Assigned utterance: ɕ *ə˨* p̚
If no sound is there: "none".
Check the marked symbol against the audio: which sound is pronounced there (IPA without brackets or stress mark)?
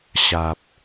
a˨